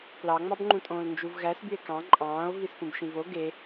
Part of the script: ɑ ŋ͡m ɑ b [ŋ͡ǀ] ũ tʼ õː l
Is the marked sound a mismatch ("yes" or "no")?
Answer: yes